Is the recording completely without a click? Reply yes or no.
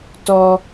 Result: yes